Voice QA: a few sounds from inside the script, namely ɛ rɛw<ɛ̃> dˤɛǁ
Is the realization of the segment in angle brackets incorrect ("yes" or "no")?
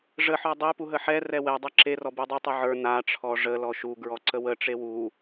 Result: yes